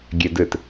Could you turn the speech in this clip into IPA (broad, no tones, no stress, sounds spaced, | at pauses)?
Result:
ɡʲ ɛ d ɘ t